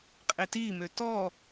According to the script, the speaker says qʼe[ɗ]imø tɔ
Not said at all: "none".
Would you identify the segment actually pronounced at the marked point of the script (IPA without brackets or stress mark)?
t